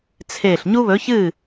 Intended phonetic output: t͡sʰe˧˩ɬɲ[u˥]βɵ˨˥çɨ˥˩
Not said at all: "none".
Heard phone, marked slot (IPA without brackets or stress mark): u˥